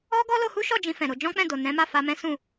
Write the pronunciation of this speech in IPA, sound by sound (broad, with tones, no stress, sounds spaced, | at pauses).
ɔ˦ ɡ ɔ˦ l o˧ h u˦ ʃ ɔ˦˨ d͡ʒ ĩ˧ f ɛ̃˨ ɾ o˧ d͡ʒ ɔ̃˦ k͡p ɛ̃˦˨ d o˨ n ɛ̃˨˦ m a˦˨ f a˧ m ɛ̃˦ s ũ˦˨